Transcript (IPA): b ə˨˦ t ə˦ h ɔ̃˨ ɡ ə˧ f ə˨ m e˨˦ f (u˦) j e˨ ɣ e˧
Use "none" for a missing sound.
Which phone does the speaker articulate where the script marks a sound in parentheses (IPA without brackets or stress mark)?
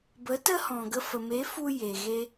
u˧